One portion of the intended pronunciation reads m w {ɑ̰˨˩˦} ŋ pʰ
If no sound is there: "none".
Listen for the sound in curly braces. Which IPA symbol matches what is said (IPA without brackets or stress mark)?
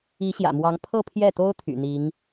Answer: ɑ˧˥